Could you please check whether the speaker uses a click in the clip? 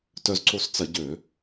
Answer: yes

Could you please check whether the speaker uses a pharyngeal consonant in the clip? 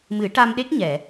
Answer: no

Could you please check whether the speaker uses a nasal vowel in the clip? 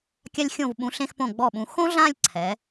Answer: yes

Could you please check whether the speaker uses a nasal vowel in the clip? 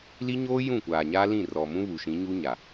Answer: yes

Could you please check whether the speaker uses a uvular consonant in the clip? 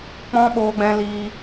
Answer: no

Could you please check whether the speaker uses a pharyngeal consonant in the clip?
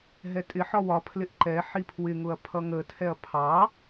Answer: yes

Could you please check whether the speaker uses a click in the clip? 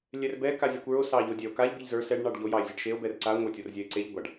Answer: yes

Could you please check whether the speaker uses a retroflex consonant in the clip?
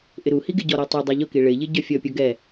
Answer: yes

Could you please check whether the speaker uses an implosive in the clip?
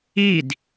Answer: no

